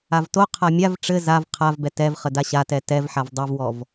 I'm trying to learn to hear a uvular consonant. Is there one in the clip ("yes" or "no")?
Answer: yes